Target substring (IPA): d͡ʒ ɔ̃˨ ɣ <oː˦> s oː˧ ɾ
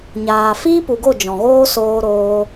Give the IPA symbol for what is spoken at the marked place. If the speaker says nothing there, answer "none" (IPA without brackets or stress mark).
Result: oː˦